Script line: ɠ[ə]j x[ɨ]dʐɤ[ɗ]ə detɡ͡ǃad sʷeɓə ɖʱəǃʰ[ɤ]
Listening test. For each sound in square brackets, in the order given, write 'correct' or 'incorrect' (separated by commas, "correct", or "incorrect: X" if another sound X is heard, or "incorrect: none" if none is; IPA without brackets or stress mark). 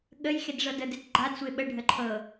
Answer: correct, incorrect: e, incorrect: d, correct